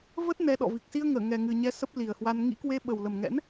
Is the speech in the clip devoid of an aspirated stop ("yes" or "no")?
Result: yes